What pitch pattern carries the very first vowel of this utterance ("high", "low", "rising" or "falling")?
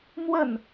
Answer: falling